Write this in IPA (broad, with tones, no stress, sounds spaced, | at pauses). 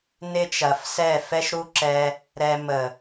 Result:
n ɪ˦ t͡ʃ ɐ˨ f s ɛ˦˨ f ɛ˦ ʃ ɾ u˦ ǁ ɛ˧ | ɾ ɛ˧ m ə˨